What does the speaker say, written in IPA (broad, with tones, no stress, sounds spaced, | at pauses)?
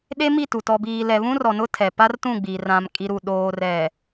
ɗ e˦ m i˦˨ t u˨ t ɔ˨ b iː˨ l ɛ˨ β ũ˦ r ɔ˨ n ʊ˦ tʰ ɛ˨ p a˦ r t ũ˦˨ ɡ͡b i˨ r ã˨ m kʼ i˨ ɾ u˨ ɗ oː˨ r ɛ˨